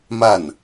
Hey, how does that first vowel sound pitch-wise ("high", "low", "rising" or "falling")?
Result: falling